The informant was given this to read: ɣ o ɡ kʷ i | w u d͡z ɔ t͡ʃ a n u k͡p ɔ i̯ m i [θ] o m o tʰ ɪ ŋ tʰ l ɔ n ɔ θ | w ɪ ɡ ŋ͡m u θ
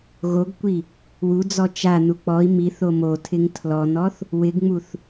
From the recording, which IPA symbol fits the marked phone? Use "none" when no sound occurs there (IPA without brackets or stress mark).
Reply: θ